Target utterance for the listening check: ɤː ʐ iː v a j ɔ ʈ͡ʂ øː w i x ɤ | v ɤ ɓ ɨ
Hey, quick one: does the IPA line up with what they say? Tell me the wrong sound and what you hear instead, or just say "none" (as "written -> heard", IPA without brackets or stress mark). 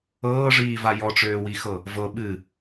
none